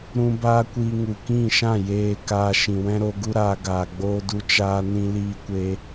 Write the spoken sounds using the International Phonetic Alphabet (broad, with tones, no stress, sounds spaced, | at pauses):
ɾ ũ˧ b aː˦ kʷ iː˧ ŋ u˨ k ĩ˦˨ ʃ ã˦˨ j eː˨ k aː˧ ʃ ĩ˨ w ɛ̃˦ ɾ o˧ ɡ u˦ ɾ aː˧ ɡ aː˨ ɡ͡b oː˧ d u˧ t͡ʃ aː˧ n ĩ˦ l iː˧ kʷ e˧